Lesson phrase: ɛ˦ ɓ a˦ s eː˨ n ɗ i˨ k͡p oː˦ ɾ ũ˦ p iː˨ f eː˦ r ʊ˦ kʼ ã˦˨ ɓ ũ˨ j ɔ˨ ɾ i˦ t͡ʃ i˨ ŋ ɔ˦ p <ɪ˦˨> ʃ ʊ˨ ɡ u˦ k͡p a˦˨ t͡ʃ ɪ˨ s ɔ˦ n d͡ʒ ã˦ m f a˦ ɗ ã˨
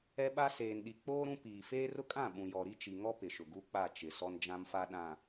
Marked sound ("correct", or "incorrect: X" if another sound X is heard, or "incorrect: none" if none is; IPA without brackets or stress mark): incorrect: ɪ˨